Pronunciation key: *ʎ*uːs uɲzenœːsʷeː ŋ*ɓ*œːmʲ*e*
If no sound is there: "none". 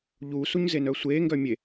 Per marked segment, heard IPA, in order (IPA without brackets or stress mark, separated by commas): ʎ, ɡ, e